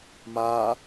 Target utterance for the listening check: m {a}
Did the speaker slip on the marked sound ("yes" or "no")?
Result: no